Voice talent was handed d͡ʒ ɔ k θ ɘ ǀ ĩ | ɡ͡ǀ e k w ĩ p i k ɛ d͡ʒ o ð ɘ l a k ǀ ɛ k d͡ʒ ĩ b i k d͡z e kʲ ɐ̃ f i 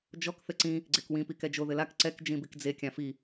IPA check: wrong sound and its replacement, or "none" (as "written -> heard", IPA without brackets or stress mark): ɐ̃ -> ã